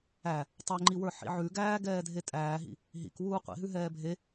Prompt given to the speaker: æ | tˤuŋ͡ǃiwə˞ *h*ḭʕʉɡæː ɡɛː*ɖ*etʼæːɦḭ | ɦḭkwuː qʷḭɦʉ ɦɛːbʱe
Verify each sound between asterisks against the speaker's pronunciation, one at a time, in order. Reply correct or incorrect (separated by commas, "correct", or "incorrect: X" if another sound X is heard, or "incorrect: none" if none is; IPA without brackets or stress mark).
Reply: incorrect: ħ, incorrect: dʱ